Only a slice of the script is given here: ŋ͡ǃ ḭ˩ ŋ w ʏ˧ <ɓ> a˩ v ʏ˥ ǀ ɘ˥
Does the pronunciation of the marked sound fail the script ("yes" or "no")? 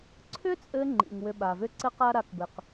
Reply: no